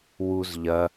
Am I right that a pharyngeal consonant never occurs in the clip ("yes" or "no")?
yes